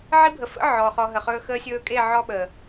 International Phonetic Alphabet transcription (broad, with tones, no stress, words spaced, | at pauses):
ʕi˦bʱə˨ fə̰˦ ʕɔ˨χɔ˧ɦə˨χɵː˦ xəː˧sʲɵː˧kʼe˦˨ ʕɔ˦ɓə˨